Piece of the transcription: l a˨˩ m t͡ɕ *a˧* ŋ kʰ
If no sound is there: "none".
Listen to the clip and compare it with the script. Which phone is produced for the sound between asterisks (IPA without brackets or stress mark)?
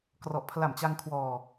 a˧